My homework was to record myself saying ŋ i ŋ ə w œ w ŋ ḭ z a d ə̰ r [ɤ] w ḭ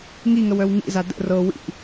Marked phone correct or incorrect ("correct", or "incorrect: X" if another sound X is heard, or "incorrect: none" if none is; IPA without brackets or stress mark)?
correct